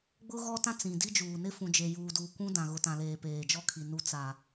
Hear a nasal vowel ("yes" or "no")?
yes